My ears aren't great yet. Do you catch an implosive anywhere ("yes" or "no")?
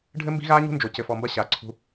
no